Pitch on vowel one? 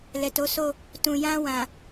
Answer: low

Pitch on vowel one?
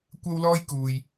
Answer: high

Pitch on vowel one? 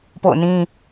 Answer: falling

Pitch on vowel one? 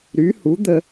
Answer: rising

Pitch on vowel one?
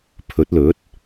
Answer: rising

